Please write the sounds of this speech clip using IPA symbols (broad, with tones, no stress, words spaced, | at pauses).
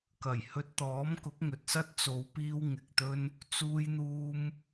kɐ˨˩jhɵ˧t̚t̪ɔː˨˥mkʊ˨˥k̚ ŋɵ˨t̚sɐ˥t̚ t͡so˨˧wpiː˧w ŋɪ˨k̚t̪ɵ˥n | t͡suː˧jn̪uː˧m